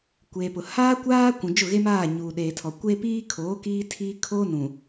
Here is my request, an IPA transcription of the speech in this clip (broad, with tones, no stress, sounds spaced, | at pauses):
kʷ eː˨ p ʊ˨ h aː˦ kʷ aː˦ kʷ ũ˨ d͡ʒ ʊ˦˨ ɣ e˦ m aː˦˨ ɲ uː˨ ɗ eː˨ tʰ ɔ˨ kʷ eː˦ p iː˦ kʰ oː˨˦ k iː˦ tʰ iː˦ kʰ oː˦ n ũ˨